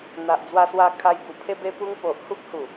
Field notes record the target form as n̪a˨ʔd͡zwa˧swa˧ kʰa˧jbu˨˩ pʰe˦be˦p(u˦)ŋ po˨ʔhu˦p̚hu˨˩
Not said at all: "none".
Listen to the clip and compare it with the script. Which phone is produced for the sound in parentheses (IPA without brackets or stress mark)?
u˦